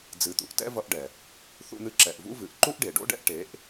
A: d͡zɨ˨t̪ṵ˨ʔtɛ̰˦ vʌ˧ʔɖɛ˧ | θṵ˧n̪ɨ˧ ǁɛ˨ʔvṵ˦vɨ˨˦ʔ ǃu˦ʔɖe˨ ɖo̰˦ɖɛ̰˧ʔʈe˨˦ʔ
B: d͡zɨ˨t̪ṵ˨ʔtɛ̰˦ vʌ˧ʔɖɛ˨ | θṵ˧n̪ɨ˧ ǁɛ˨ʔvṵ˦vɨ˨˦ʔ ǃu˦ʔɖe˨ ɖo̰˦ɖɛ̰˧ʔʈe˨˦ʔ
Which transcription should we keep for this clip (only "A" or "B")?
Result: B